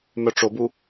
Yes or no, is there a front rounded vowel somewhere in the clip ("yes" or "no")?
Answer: yes